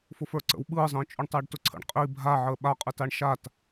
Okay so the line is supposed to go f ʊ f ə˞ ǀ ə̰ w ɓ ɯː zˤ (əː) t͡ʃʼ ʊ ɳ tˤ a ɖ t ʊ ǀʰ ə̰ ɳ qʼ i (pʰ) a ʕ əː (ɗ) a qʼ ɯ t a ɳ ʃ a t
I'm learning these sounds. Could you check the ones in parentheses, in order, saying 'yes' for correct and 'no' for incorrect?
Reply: no, no, no

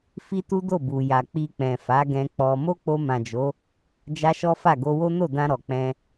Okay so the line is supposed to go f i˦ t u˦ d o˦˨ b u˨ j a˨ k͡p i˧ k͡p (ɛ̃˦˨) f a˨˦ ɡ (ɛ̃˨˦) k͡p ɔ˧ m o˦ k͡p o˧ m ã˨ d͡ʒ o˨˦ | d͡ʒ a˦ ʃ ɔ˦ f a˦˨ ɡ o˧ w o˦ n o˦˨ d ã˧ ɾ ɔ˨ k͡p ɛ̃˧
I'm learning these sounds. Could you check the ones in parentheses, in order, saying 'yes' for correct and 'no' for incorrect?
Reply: no, no

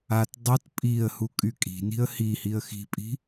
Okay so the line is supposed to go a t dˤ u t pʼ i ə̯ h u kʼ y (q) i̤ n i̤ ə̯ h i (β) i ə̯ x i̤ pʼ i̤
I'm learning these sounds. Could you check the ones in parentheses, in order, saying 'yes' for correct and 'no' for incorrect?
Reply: no, no

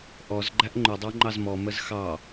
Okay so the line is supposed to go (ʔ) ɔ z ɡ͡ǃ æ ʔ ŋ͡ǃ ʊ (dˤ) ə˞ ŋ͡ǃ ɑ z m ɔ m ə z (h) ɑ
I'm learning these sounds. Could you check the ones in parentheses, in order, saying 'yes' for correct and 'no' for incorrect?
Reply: yes, yes, no

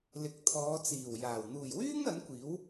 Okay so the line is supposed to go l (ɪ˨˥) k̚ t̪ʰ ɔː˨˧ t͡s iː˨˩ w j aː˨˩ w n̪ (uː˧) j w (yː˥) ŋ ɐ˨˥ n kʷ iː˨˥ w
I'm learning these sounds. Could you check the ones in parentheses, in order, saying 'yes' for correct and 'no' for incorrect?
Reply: yes, no, yes

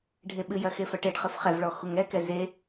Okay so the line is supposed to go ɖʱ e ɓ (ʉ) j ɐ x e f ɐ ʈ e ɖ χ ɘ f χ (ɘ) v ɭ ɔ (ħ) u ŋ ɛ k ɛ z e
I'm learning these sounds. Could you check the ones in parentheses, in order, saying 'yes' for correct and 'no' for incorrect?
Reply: no, no, no

